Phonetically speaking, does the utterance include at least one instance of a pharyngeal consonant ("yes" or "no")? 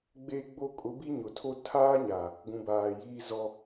no